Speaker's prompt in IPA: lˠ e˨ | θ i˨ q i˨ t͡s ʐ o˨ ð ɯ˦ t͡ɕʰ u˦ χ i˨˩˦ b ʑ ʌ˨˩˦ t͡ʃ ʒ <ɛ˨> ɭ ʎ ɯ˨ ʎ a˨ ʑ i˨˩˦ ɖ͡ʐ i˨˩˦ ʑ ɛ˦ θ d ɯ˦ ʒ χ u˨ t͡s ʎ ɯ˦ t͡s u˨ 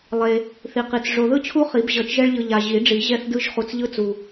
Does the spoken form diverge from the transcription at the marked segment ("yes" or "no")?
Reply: yes